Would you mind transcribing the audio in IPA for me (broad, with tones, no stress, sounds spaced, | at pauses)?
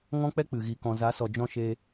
ŋ ɔ̃˦ k͡p ɛ˦ k͡p ɨ˨ ɣ i˨ k ɔ̃˨ z a˨˦ s ɔ˨ d͡ʒ ɔ̃˧ ʃ e˧